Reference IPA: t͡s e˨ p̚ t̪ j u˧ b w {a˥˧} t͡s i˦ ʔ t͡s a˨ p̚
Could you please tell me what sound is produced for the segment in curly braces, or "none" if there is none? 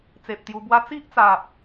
a˦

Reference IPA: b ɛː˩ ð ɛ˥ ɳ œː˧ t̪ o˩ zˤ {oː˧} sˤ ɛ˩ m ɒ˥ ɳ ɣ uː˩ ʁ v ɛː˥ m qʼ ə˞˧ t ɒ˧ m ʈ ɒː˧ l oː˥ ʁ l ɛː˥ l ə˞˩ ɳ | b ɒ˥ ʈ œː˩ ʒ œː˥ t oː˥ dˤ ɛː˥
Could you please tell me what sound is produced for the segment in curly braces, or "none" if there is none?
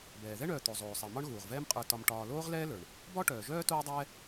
oː˩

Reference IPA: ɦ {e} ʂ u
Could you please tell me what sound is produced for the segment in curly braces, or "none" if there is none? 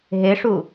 e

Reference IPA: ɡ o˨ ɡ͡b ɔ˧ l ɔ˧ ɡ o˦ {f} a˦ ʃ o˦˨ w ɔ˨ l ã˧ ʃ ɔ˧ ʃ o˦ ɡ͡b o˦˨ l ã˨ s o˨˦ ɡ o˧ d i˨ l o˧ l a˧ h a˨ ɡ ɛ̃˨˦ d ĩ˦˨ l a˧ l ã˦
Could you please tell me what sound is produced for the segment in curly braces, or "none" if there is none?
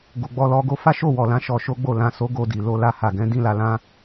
f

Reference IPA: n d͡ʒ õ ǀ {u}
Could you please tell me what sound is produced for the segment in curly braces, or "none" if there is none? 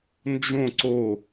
o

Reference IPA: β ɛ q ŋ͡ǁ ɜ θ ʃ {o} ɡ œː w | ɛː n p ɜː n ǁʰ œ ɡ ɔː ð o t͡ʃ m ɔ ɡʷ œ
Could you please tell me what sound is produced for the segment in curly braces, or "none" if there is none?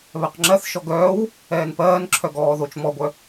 ɔ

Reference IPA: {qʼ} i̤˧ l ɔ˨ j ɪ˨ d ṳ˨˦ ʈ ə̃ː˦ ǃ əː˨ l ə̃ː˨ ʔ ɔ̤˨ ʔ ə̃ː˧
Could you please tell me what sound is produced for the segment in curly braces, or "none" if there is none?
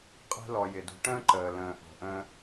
qʼ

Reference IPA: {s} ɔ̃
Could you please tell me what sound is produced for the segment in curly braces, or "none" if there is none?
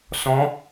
s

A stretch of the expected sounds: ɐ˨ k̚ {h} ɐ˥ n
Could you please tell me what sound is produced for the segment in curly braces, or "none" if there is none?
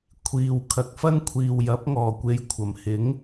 f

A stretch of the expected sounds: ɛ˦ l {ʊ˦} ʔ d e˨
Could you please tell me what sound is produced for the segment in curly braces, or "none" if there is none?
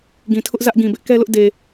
ʊ˦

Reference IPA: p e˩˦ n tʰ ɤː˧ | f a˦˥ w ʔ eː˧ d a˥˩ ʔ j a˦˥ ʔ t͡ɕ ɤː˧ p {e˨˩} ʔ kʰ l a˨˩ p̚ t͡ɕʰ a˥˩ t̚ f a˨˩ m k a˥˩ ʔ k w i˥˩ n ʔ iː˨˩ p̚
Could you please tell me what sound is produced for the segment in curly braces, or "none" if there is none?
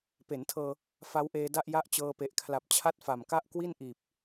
e˨˩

